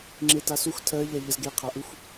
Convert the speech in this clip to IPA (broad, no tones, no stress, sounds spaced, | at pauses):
ŋ͡ǁ e t a s u x tʰ ɜ ʎ æ ʎ ə z ɡ e qʰ a ʔ u x